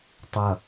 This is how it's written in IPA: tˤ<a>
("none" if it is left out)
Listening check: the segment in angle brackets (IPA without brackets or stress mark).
ʌ